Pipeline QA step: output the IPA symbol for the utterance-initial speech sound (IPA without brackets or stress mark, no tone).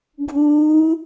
ɡʱ